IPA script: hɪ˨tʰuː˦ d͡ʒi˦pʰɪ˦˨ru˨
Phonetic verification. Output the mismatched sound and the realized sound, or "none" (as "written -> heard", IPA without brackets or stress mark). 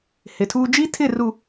pʰ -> tʰ